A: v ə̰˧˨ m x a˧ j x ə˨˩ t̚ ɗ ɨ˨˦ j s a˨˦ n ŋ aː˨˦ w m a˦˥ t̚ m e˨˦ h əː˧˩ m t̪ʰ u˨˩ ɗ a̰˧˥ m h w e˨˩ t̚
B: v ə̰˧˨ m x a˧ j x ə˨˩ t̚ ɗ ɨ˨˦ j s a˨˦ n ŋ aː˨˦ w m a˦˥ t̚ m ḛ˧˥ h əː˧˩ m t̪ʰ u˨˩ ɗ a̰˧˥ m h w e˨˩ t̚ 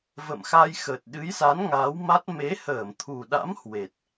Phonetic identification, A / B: A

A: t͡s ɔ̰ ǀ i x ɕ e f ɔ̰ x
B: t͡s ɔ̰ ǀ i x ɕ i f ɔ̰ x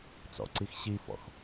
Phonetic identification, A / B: B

